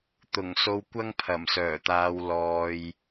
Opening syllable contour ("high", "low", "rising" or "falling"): low